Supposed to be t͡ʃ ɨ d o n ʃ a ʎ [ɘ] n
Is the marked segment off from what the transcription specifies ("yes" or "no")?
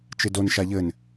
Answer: no